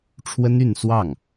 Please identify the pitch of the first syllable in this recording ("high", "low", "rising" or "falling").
high